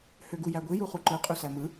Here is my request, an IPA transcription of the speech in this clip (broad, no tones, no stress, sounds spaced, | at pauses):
h ø ɡ u j æ ɡʷ i j u χ u ǃ ɯ qʼ y s æ m ɯ